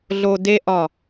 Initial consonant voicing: voiced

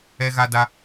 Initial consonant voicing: voiced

